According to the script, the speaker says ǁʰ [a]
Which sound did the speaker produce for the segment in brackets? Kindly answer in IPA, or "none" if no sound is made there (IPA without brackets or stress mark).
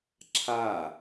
a